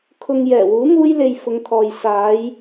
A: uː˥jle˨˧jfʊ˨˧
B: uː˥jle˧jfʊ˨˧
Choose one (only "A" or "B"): B